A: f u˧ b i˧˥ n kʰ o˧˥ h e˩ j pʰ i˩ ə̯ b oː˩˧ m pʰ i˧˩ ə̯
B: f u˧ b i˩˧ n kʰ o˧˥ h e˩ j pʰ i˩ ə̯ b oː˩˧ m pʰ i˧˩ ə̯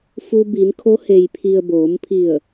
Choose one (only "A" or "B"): B